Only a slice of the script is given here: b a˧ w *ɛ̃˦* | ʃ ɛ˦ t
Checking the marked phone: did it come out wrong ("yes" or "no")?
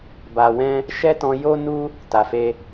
no